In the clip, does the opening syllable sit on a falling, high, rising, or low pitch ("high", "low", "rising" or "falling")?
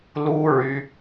high